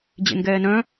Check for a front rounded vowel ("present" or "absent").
present